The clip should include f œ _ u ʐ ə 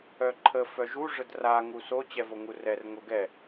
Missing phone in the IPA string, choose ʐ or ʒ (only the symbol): ʒ